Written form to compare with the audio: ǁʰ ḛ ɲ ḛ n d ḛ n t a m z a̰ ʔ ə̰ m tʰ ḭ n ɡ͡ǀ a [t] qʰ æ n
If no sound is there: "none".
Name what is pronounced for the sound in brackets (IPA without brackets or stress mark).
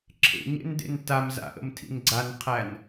n